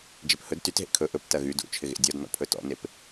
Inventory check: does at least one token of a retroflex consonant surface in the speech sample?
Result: no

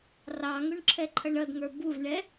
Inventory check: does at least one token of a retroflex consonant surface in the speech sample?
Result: yes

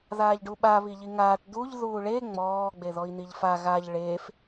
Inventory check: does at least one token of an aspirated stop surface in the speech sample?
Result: no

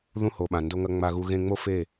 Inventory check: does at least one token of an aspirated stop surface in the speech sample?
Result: no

